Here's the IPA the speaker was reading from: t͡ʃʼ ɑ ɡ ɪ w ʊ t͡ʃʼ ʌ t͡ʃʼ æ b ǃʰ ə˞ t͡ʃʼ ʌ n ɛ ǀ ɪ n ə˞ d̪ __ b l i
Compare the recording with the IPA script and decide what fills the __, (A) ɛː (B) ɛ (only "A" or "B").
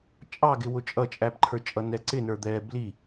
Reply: A